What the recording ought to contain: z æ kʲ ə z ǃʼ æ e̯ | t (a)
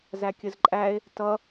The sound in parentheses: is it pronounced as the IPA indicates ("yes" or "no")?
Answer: no